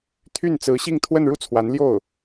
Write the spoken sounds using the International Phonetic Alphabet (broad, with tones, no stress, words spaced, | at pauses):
t̪ʰy˥˩n t͡sɹ̩˧˥ɕi˥˧ŋ t̪ʰwə˥˧nɻu˥˩t͡sʰwa˧˥n ljo˥˩ʊ̯